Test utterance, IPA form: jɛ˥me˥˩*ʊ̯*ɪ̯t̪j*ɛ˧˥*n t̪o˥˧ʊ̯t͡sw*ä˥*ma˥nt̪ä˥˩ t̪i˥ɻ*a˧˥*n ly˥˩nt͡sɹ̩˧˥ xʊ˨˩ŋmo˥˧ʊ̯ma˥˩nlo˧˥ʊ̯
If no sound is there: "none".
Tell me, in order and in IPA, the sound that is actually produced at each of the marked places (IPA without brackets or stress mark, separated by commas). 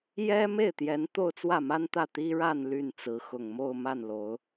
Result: none, ɛ˧˥, ä˥˩, a˥˧